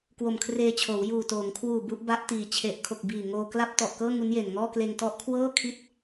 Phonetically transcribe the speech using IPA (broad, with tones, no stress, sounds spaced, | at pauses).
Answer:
k w o˨˩ m kʰ r eː˧ t͡ɕʰ oː˩˦ w j uː˨˩ t oː˩˦ ŋ kʰ w uː˨˩ b u˥˩ ʔ b a˦˥ ʔ t iː˨˩ t͡ɕʰ e˨˩ ʔ kʰ o˨˩ k̚ b iː˨˩ ŋ oː˧ k l a˥˩ p̚ t ɔ˨˩ ʔ k ɤː˥˩ ŋ u˦˥ n j e˨˩ n ŋ ɔː˥˩ k l eː˧ ŋ t ɔ˦˥ ʔ kʰ w ɤː˥˩ kʰ i˦˥ t̚